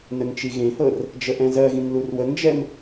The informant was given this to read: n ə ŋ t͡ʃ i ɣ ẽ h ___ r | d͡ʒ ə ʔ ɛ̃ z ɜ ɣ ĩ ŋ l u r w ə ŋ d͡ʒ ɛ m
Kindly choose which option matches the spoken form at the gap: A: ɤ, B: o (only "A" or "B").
A